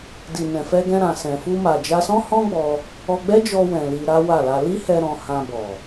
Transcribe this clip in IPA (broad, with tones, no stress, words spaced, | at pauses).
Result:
di˨nɛ̃˨fɛ˧ɡɛ̃˧ ɾã˨sɛ̃˨fu˧ ma˨d͡ʒa˧sɔ̃˦ hɔ̃˦ɡ͡bɔ˧ | ɔ˧ɡ͡bɛ˦d͡ʒɔ˧ wɛ̃˨ li˧ɾa˦wa˦˨la˧ li˦hɛ˧ ɾɔ̃˧hã˧bɔ˨